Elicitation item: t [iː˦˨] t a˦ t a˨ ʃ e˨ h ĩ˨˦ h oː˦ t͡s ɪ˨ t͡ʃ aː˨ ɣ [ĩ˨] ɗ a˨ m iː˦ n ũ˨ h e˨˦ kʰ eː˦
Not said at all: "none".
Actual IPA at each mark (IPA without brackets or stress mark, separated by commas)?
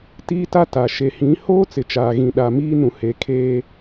iː˦, ĩ˨